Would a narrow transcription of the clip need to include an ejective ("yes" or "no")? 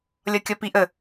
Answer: no